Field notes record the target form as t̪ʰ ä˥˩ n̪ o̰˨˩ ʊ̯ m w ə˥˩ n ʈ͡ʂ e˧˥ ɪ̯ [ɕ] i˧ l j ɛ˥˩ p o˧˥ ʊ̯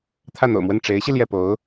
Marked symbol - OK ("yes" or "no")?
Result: yes